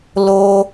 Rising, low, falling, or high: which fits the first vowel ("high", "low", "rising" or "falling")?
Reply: high